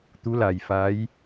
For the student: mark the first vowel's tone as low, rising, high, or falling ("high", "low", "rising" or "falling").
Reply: rising